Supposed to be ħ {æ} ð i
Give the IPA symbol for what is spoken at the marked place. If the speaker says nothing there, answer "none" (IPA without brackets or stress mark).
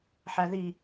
æ